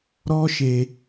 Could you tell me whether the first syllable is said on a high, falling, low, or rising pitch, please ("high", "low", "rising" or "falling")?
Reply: high